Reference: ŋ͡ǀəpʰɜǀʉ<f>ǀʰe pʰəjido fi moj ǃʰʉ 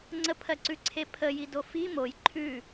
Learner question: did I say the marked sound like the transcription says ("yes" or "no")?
no